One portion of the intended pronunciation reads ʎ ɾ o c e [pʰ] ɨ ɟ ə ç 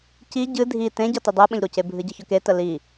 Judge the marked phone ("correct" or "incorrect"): incorrect